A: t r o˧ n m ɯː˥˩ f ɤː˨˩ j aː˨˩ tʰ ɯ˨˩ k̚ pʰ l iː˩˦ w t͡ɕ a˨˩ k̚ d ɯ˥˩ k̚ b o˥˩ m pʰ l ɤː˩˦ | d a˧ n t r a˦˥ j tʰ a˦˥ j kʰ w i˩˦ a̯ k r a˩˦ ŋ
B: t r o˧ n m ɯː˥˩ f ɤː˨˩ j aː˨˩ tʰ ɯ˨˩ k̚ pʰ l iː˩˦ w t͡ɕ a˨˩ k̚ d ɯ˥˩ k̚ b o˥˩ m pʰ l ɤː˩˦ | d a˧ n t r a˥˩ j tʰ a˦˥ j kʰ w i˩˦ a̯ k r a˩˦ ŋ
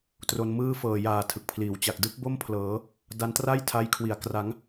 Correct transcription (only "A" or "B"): B